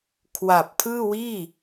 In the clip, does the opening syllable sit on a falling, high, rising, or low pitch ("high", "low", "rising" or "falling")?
low